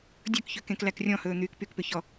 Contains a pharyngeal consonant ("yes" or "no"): no